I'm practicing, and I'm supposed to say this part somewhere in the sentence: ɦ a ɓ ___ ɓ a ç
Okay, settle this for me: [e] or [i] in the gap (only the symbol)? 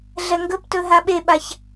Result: e